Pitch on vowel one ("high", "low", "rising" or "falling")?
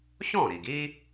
falling